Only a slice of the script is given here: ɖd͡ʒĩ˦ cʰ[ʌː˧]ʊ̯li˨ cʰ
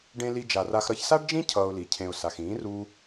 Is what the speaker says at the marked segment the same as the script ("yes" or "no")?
yes